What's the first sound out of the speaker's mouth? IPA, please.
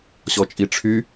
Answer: ɕ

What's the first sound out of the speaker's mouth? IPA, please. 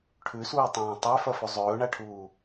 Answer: ʈʰ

